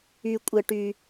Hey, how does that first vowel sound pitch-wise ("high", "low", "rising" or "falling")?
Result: high